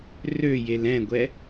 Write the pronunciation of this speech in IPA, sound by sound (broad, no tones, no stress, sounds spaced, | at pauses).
r ø j e l ɛ̃ ɡʷ ɛ